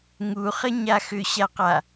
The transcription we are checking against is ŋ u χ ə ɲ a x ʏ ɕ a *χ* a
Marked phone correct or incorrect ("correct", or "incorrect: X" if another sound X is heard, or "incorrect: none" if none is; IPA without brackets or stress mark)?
incorrect: q